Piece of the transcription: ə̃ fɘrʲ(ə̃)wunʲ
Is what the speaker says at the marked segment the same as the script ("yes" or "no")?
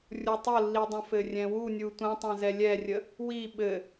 no